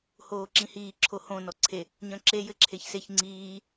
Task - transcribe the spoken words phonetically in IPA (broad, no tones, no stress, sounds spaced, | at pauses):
h oː ǁ ĩ h iː ǁʰ o h õ n ɔ ǀʰ e | ɲ œ̃ ǁ e j ɘ ǁʰ e ç s e ç ŋ͡ǀ iː